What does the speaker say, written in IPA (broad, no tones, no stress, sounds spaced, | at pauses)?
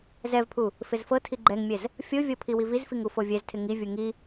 z ɛ v pʰ u | f ɪ z f ɤ tʰ i ɡ͡ǃ ɛ ŋ mʲ ɛ z | fʲ o vʲ ɤ pʰ i w i v i z f i ŋ u f o vʲ ɛ z tʰ ɪ ŋ i vʲ u ŋ i